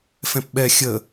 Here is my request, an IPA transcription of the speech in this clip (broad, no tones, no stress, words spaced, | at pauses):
fɛ̃pɓɛ xʲə